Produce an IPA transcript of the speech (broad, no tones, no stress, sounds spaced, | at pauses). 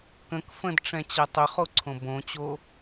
k ə̃ k f ə̃ d ʈ͡ʂ ɛ̃ t͡ɕ ɛ tˤ ʏ χ o ǀʰ õ b õ t͡ɕ o